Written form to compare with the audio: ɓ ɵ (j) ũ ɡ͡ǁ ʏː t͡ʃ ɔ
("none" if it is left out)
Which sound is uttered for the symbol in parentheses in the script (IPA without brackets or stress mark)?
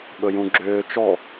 j